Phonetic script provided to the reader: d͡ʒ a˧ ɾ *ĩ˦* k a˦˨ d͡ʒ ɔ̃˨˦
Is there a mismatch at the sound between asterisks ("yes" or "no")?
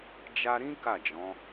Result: no